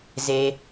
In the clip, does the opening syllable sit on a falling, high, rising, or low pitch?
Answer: low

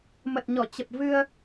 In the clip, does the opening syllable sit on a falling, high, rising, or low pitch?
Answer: low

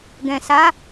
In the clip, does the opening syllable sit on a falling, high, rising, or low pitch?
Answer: low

